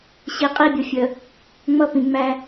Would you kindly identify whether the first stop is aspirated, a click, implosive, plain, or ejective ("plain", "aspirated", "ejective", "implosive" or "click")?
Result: ejective